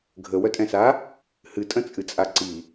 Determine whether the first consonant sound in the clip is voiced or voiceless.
voiced